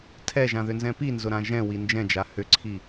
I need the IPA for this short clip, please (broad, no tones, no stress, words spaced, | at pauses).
tʰɛʒãðʏnzɛ̃ pinzʊɾã ʒɛ̃wi nd͡ʒɛ̃d͡ʒa hʏǀʰi